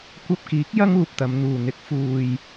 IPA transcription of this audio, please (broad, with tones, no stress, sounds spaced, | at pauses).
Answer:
kʷ ɐ˧ p̚ k iː˨˥ k̚ j ɐ˥ ŋ uː˨ p̚ t̪ ɐ˨˧ m n̪ uː˨ n̪ ɪ˨˥ k̚ f uː˨ j